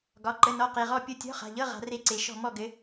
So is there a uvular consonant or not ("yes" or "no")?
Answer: yes